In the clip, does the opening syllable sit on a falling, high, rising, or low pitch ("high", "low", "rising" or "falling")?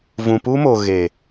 low